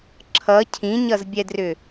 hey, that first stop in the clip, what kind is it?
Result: click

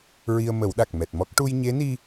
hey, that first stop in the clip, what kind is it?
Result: implosive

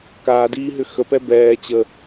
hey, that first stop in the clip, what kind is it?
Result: plain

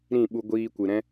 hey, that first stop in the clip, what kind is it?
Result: implosive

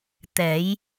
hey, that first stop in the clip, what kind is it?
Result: plain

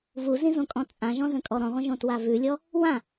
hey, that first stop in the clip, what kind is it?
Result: ejective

